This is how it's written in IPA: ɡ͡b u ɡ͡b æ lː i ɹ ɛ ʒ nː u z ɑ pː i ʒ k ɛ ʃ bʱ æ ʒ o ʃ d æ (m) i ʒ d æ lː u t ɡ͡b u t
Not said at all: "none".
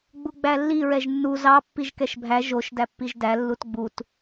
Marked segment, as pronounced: pː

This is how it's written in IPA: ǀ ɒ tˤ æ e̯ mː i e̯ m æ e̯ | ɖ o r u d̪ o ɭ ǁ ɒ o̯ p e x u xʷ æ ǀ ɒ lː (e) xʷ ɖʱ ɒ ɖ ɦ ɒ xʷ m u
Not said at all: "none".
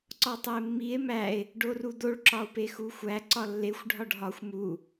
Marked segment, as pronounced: e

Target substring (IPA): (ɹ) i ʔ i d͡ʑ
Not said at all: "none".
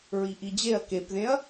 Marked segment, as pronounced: ɹ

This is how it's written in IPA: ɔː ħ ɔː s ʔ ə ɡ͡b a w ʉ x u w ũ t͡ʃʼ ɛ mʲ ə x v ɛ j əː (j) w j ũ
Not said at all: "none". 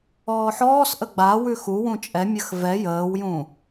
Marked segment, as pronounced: none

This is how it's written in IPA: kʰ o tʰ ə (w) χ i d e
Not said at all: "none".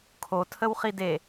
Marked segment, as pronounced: w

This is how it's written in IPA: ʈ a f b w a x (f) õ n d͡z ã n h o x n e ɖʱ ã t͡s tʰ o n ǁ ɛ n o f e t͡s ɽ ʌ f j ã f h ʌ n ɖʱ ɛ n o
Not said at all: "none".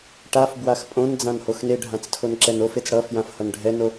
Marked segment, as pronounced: pʼ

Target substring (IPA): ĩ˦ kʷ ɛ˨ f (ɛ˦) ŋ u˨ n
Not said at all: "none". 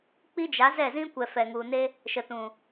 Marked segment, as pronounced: ɛ˨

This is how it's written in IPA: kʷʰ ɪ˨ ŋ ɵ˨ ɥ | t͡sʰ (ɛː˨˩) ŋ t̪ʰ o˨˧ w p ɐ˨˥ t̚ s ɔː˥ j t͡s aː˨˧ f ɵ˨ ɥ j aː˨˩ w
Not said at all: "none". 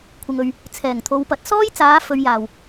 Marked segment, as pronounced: ɛː˨˩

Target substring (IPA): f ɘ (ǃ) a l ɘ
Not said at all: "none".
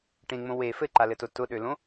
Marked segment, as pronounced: ǃ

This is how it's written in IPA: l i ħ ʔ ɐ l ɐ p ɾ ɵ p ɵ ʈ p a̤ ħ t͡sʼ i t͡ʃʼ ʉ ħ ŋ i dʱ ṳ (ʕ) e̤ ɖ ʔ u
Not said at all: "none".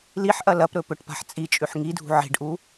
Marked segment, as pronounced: ʕ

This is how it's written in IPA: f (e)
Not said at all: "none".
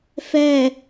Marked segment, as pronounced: ɛ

